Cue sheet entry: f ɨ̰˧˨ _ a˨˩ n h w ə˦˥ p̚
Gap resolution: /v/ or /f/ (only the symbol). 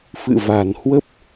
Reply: v